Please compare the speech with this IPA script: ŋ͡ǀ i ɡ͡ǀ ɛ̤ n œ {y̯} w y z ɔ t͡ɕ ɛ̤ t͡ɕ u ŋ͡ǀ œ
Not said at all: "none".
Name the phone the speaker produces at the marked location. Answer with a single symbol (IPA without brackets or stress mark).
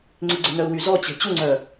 u̯